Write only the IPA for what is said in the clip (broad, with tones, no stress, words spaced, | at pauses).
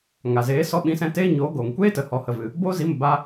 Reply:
ŋa˨zeː˨˦ sɔ˧ɓĩ˨˦sɛ̃˧ teː˦ɲoː˨˦ ɡoː˨ŋkʷeː˦tə˨ hɔ˨hə˨vɨ˨ | bo˦ zi˨˦mə˨ ba˦